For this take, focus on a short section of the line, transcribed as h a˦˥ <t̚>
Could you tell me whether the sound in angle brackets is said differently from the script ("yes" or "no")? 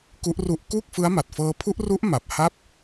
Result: yes